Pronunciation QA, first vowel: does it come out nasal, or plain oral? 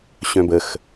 nasal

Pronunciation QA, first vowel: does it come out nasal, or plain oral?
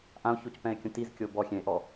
nasal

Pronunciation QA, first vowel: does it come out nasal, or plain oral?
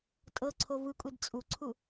oral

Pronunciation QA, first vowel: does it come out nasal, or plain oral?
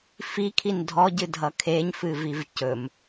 oral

